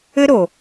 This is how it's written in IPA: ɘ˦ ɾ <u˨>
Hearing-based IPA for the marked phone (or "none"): o˨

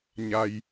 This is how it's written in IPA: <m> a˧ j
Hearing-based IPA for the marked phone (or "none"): ɲ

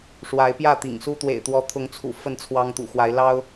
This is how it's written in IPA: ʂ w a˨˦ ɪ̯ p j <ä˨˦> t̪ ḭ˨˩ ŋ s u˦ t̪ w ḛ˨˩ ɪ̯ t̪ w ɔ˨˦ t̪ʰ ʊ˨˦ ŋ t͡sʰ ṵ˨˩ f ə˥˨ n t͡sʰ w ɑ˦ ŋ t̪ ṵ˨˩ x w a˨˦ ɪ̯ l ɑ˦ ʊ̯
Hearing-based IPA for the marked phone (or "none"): ä˥˨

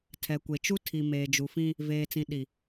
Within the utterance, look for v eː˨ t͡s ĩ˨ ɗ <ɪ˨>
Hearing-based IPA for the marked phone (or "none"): i˨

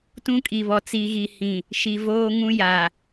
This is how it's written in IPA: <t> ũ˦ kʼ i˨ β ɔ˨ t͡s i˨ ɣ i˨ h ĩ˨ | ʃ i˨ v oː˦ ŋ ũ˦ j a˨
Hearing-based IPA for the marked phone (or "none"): t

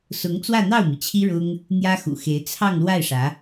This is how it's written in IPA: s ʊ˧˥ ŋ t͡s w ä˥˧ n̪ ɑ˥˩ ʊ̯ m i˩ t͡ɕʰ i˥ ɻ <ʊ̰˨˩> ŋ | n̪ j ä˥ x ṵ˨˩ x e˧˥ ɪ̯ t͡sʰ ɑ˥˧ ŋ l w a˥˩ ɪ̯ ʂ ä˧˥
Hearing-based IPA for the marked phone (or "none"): ʊ˥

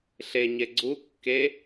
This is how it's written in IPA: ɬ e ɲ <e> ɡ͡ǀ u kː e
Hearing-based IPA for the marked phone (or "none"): e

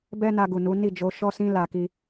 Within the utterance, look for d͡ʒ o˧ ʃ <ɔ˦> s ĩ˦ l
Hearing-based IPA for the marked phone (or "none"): ɔ˦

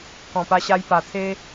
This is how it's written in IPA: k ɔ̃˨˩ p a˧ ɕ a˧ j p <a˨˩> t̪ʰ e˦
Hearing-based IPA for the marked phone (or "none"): a˨˩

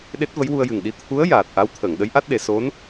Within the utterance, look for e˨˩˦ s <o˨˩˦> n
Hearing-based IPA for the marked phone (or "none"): o˧˥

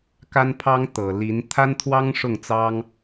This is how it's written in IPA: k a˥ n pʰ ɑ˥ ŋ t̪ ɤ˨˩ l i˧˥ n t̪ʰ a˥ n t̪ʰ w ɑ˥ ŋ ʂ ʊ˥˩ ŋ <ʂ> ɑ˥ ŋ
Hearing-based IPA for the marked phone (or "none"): t͡s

